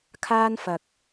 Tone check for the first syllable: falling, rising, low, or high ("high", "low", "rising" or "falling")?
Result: high